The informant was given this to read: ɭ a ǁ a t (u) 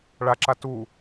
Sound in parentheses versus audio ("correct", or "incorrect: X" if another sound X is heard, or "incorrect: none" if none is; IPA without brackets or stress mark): correct